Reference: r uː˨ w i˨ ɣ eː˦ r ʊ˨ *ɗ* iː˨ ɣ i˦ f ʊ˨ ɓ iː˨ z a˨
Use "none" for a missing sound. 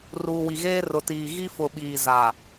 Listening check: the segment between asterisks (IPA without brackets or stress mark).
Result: t